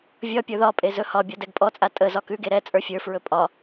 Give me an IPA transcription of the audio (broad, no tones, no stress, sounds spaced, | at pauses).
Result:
vʲ ɒ pʲ ə˞ ð ɒ pʼ e z ɵ h ɒ bʲ ɔ d ɛ ɡ pʼ ɔ t͡sʼ a tʼ ə z ɒ k ʉ ɡ e ɾ ɛ t͡sʼ ə˞ fʲ ə˞ f ɹ ɵ pʼ ɒ